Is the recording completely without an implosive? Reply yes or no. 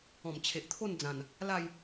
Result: yes